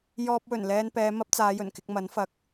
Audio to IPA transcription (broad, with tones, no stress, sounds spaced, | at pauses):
j ɔː˧ p̚ w ɵ˨˩ n l ɛː˧ n p ɛː˨˧ m ɐ˥ p̚ t͡s aː˨˧ j ɵ˨˩ n k ɪ˧ k̚ m ɐ˨˥ n f ɐ˨˥ k̚